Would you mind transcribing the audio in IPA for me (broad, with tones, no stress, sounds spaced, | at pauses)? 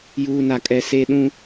j uː˨ n a˨ kʼ ɛ˨ s e˦ ɗ ũ˦